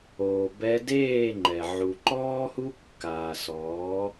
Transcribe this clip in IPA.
oː˨ b ɛ˧ d eː˦˨ ŋ͡ǃ ɛ˨ ʕ u˨ ǃ ɔː˦ h u˦ kː aː˨ s ɔː˨˦

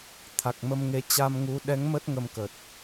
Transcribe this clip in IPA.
t̪ʰ a˨˩ k̚ m ə˧ m ŋ e˨˦ t͡ɕ a˧ m ŋ u˨˦ ɗ ɛ˨˦ ŋ m ə˦˥ t̚ ŋ ə˧ m k ə˨˩ t̚

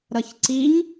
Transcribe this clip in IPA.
ɾ ʌ ç ǀ i ɲ

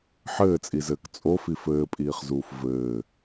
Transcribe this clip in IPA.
ħ ɘː t͡sʼ i z ɘː k t͡sʼ o f i f ɘː pʼ iː χ z uː f v ɘː

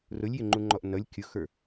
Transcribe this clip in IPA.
r ʊ lʲ j ɪ ŋ͡ǃ u ŋ͡ǃ ɔ ʔ n ʌ lʲ kʲ ʊ x ə˞

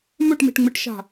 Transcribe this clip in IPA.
m ɵ ʈ m e̤ ʈ ŋ͡m ɨ ʈ ʃ a̤

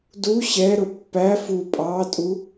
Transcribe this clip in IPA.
d u ɕ ɛ ɾ ʊ pː æ f u pʼ ɑ tʼ u

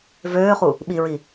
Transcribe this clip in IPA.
v øː χ u | ɓ i ɹ i

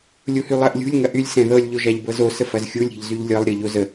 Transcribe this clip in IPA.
lʲ u h y lˠ ɜ ʔ lʲ ṳ lʲ ŋ ɐ ʔ y lʲ s ɛ̃ ð ɤ lʲ ʎ o ʒ a ʎ b ɤ z o s ə f ɐ z xʲ u lʲ ɾʲ ɛ̤ ʎ z y ʎ lʲ ɤ lˠ ɾʲ ɤ ʎ o z ə

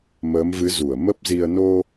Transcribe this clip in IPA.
m əː˨˦ m v ɨ˨˦ z u˧˩ ə̯ m ə˦˥ p̚ z i˧ ə̯ n o˧

